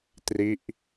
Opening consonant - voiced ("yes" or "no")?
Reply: no